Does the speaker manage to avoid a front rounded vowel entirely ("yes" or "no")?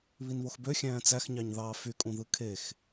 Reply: no